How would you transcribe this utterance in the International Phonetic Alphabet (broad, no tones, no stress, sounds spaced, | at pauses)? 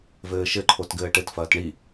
v ɘː ʃ ɘ ǃʰ o t ɡ ɘː ʈ ɘ t f ɐː t ɳ i